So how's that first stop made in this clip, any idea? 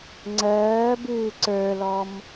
click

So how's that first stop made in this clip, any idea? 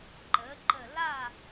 click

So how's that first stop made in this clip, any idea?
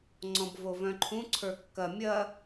click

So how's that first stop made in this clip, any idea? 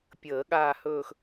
plain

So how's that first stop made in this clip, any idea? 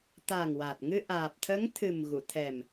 plain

